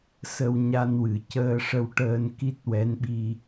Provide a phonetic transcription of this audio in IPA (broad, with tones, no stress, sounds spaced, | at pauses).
s ə˧ w ɲ a˧ n w ɨ˨˩˨ c əː˧ ʂ ə˧ w ʈ əː˧ n k i˦˥ t̚ w ɛ˧˥ n ɓ i˧